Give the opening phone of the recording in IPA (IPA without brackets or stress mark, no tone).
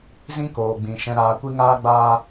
z